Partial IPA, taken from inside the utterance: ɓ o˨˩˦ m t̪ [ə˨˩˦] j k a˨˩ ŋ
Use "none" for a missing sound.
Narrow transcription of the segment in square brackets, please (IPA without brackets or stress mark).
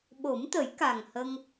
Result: ə˨˩˦